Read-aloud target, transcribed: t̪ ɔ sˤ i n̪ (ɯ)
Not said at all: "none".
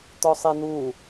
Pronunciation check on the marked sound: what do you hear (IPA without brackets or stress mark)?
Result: u